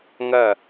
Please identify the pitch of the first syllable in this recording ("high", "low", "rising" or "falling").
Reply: falling